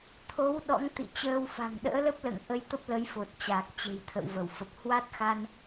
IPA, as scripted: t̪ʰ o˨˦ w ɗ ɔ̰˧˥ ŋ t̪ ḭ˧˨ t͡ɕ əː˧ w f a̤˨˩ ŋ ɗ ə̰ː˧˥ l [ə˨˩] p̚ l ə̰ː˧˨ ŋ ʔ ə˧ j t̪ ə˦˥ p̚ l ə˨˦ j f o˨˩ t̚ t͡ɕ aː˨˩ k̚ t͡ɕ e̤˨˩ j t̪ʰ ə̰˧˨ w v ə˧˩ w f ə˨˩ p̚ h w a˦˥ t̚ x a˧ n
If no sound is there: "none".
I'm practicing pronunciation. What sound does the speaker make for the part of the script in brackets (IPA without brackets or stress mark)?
ə˦˥